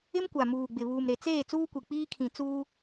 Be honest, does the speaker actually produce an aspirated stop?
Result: yes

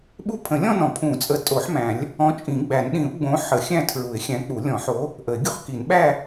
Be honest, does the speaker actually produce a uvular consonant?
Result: yes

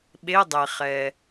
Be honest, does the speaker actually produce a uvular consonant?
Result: yes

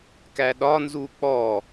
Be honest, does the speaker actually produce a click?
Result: no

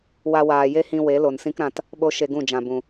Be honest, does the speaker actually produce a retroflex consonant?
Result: no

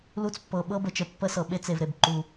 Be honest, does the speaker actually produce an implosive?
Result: yes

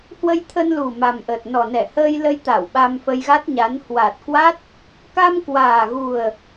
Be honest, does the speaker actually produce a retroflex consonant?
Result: no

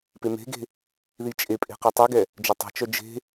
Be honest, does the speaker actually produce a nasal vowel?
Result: no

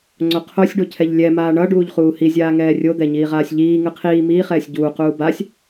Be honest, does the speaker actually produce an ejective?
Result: no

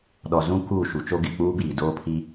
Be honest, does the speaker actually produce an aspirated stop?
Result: yes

